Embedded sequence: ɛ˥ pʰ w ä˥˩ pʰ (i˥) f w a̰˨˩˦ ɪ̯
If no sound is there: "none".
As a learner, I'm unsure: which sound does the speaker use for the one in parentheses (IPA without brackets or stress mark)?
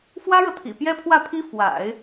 i˥